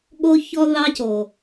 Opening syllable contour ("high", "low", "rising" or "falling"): high